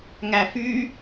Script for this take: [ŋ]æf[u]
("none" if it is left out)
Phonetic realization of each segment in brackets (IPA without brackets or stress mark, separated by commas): ŋ, y